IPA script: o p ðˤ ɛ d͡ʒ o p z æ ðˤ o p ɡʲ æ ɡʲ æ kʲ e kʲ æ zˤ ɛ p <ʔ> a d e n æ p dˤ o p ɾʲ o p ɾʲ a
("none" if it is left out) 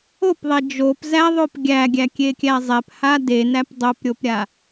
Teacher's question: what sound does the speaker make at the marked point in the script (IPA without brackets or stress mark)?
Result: h